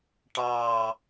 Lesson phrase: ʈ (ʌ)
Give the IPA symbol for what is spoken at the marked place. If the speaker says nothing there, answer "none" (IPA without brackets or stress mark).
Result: ɑ